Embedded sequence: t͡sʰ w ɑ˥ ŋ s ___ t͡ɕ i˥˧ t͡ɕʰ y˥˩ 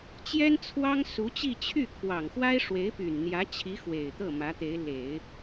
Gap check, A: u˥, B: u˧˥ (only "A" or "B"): B